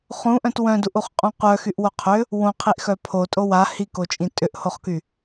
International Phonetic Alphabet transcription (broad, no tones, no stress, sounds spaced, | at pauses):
χ ũ ʔ œ̃ t w œ̃ d u ʔ u χ qʼ ũ qʷ œ x y ʔ w o qʰ ʏ | w õ qʰ i ʔ x œ pʰ o tʼ o w a h i k o t͡ʃʼ ĩ tʼ ʏ ʔ h o χ k y